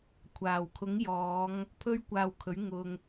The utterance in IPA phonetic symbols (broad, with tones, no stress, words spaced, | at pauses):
kʷʰaː˨˩wkʰʊ˨˥ŋjɔː˨˧ŋ | pʰɵ˥ɥkʷaː˧wkʰɵ˨˥ɥ ŋʊ˨ŋ